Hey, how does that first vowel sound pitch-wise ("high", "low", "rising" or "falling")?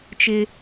high